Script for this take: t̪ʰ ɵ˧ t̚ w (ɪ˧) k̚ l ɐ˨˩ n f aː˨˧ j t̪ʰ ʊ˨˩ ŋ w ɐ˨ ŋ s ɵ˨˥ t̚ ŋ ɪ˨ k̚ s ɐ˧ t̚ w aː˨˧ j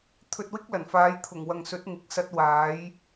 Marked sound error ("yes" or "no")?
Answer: yes